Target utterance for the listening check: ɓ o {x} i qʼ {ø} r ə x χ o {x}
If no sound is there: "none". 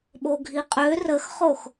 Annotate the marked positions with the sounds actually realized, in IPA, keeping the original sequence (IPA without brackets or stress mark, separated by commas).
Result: ɡʱ, ø, x